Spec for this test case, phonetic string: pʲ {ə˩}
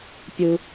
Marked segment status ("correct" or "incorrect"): incorrect